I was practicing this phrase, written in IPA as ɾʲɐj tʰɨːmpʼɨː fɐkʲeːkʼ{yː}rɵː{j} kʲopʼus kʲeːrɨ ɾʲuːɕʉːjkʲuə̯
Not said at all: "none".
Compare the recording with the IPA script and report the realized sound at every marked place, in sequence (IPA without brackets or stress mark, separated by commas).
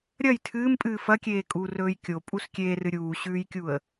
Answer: uː, j